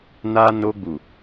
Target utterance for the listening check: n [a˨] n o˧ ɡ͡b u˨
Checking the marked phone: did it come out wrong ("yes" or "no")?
yes